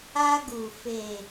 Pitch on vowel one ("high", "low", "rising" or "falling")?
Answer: high